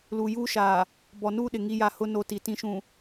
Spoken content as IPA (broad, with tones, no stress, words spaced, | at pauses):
luː˨juː˦ʃaː˨ | bɔ˨nuː˦ɗɪ˨ ŋi˦ja˦˨ hʊ˦ no˦ti˨ tĩ˦ʃũ˨